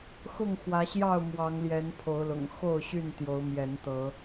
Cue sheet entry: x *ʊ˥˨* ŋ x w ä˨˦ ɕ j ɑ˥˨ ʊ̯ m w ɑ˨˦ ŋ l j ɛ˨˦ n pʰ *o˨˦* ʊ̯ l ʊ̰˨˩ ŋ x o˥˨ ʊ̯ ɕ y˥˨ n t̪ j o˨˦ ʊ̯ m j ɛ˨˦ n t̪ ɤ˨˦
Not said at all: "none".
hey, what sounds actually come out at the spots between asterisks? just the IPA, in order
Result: ʊ˥˨, o˨˦

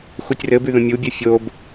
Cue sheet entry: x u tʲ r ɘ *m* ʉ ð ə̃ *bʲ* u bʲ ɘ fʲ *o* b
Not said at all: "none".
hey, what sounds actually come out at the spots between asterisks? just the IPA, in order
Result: b, mʲ, o

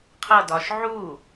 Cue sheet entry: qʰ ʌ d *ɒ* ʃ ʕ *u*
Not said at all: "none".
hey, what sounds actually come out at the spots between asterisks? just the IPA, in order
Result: ɒ, u

